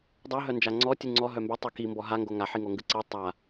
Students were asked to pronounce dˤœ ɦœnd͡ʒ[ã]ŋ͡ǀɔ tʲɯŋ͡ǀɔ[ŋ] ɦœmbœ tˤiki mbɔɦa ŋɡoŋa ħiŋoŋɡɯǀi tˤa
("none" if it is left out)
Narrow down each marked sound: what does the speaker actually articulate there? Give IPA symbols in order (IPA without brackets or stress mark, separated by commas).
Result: a, none